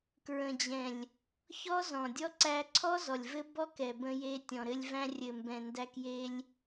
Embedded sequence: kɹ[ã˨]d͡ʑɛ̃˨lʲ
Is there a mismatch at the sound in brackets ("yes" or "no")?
yes